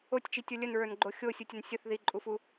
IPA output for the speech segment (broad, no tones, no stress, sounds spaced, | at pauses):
o tʲ t͡ʃ i tʲ o lʲ ə n ɹ ə˞ n ɡ͡ǃ o xʲ o sʲ u tʲ ə n sʲ ə θ ð i ǃʼ u f u